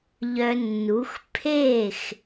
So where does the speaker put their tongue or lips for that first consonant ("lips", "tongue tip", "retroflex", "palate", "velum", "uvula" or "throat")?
palate